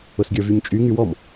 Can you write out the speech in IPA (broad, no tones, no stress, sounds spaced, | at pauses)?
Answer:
ʊ s ɡʲ ə˞ v y ɲ t͡ʃʼ y ŋ y w ɔ m